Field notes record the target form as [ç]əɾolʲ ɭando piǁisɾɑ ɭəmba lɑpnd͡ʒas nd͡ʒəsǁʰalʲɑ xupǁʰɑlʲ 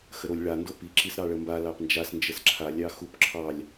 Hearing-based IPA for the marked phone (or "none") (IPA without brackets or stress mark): x